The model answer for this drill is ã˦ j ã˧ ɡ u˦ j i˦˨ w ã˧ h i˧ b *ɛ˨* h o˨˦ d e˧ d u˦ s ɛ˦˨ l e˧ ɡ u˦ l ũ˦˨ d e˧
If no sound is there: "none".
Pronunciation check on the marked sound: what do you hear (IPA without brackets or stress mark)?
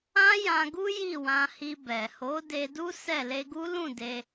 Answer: ɛ˨